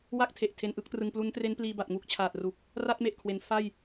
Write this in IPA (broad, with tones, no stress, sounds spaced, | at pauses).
w a˥˩ k̚ tʰ e˨˩ ʔ tʰ e˧ n ʔ ɯ˦˥ k̚ t r ɯ˧ ŋ p l u˦˥ n t r e˦˥ n p l iː˧ b a˨˩ t̚ ŋ u˦˥ k̚ t͡ɕʰ aː˨˩ t̚ r u˨˩ k̚ | r a˥˩ t̚ m e˨˩ ʔ kʰ w e˩˦ n f a˥˩ j